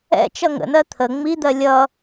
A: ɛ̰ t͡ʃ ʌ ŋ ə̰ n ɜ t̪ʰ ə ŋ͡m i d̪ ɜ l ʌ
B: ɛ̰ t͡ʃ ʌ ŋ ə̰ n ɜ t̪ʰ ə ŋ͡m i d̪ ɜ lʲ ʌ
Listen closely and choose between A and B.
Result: B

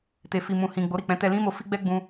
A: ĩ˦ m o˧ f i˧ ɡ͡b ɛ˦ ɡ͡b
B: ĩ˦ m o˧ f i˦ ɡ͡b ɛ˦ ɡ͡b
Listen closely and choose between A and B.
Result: B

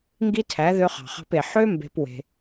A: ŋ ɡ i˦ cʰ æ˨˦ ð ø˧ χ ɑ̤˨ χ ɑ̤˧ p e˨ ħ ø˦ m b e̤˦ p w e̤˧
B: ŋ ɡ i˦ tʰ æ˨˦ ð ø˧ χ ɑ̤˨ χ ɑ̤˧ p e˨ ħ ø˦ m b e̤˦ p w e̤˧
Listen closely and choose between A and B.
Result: B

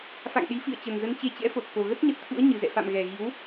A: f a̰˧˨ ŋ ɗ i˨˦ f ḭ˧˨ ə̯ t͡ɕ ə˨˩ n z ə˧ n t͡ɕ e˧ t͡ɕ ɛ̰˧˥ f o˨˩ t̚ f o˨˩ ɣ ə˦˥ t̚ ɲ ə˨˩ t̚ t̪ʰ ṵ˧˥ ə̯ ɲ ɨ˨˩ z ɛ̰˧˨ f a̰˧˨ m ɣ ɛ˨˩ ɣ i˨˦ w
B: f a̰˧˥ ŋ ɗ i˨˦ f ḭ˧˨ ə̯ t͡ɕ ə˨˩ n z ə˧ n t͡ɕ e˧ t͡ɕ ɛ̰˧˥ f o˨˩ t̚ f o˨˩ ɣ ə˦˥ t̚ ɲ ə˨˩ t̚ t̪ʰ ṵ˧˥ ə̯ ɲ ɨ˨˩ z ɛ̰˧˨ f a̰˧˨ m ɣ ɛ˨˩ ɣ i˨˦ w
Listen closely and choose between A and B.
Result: A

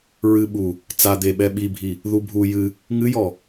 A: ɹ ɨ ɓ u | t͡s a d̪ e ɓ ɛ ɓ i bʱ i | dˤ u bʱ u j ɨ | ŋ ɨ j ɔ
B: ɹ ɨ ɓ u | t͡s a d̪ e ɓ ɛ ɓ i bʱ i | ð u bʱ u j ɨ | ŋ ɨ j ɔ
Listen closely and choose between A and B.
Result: B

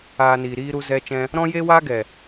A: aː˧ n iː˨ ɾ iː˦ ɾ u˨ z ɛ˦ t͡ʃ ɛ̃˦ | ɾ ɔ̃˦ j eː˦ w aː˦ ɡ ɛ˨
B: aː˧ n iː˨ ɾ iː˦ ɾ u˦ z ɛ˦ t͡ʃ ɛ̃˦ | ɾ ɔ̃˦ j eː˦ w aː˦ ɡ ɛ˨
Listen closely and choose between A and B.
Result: B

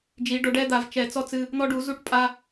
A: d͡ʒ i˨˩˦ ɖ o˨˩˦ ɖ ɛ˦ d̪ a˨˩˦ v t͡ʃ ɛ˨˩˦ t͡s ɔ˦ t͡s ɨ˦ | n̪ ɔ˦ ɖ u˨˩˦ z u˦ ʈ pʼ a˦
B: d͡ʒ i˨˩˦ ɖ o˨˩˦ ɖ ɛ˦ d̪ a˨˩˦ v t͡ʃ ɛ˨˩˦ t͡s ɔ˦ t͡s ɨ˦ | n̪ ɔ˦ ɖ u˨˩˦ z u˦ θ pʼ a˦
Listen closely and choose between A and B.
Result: A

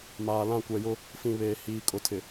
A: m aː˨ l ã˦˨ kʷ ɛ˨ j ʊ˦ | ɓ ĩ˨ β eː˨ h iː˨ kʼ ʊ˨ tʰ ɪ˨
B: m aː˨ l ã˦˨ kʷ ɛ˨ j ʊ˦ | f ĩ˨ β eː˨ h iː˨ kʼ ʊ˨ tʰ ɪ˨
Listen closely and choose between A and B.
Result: B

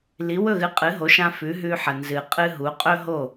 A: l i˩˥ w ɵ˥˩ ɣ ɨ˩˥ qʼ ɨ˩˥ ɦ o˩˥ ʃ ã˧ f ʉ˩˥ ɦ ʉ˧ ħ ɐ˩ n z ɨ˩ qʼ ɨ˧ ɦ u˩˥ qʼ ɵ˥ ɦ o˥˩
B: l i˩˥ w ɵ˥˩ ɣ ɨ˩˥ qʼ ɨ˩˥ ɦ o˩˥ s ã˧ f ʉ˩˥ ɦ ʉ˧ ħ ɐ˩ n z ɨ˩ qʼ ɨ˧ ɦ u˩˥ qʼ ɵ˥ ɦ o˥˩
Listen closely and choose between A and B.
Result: A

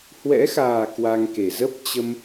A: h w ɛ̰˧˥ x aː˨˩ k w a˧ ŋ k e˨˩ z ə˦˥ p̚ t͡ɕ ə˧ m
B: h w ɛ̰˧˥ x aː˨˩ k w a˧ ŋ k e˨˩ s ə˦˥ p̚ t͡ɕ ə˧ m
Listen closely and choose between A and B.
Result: A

